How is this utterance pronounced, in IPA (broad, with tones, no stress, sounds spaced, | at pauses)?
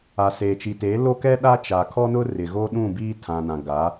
a˨ s eː˨ t͡ʃ i˨ t eː˨˦ l o˦ k ɛ˦ ɗ a˦ t͡ʃ a˨ kʰ ɔ˦ n ʊ˦ r ɪ˨ ɣ o˦ ɗ ũ˦˨ b iː˦ tʰ ã˨ n ã˨ ɡ a˨˦